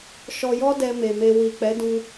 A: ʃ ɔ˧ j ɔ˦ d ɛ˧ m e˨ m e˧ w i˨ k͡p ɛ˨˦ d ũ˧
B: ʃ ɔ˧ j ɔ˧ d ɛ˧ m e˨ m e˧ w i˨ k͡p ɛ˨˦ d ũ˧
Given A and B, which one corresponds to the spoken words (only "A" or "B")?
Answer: A